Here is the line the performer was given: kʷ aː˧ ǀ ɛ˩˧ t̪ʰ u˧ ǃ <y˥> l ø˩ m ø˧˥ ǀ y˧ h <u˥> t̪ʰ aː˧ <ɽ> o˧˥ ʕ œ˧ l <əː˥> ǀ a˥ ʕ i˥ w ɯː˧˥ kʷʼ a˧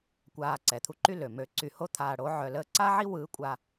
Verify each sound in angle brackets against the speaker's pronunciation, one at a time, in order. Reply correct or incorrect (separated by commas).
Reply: correct, incorrect, correct, correct